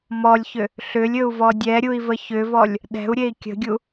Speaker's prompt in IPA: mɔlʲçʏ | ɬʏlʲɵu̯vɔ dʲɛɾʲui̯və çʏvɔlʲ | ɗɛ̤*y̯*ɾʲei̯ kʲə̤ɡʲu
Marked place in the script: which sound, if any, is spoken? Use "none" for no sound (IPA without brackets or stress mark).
u̯